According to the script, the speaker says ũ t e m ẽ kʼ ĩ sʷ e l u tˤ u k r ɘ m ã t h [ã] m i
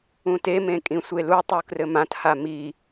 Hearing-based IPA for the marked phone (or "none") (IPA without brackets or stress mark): a